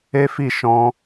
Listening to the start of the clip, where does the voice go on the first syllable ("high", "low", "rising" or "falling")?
high